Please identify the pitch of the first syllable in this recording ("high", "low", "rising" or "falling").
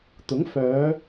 rising